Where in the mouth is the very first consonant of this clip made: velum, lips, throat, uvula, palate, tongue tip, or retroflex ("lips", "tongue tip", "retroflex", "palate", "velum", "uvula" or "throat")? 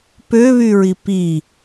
lips